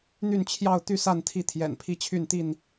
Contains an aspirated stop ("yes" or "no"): yes